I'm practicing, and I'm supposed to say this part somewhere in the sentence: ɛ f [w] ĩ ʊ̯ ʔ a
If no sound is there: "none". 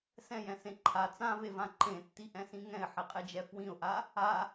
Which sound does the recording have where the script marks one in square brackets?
w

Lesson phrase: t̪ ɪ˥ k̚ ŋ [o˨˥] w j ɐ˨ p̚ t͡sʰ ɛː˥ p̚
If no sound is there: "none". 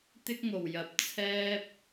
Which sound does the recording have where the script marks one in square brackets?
o˨˩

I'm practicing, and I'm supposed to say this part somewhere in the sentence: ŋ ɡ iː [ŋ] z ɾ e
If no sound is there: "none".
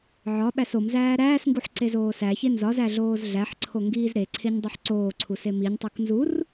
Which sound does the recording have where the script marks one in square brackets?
none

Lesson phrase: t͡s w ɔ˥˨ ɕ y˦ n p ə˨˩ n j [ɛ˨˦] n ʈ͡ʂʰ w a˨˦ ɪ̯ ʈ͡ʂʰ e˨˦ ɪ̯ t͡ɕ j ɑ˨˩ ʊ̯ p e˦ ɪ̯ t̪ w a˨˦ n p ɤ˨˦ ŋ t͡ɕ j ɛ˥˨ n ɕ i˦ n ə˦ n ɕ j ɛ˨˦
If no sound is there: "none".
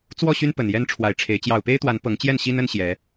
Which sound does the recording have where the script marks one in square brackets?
ɛ˦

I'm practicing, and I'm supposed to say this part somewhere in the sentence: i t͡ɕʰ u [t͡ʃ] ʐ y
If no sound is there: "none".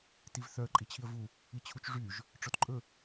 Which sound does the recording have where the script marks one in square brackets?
t͡ʃ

